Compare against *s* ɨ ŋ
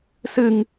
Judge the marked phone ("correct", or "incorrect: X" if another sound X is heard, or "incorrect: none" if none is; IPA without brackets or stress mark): correct